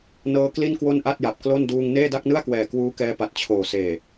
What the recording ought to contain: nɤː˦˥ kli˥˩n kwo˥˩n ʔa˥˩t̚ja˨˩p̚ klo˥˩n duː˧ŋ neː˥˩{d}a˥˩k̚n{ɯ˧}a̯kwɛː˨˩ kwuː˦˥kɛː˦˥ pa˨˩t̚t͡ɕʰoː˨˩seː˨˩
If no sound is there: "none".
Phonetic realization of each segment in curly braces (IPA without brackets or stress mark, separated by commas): d, ɯ˥˩